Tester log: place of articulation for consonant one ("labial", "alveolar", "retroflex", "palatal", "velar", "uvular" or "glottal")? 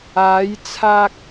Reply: palatal